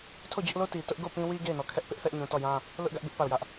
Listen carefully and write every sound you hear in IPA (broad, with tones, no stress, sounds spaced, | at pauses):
tʰ o˦˨ d͡ʑ ʊ˦ ʔ l o˦ t i˨ t ʊ˦ ʔ ɡ o˦˨ p ĩ˦ w i˦ ɡ e˦˨ ɪ̯ n ɔ˨ kʰ ɛ˦ ʔ p ɪ˦ ʔ θ ɛ˦ ʔ ɲ ũ˨ t ɔ˦˨ j ã˦ | l ʊ˦ ʔ ɡ ä˦ ʔ b ɪ˦ ʔ p a˦˨ ʊ̯ j ä˦ ʔ